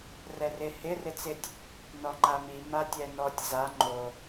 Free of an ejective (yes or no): yes